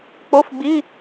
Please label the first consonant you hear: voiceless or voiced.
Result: voiceless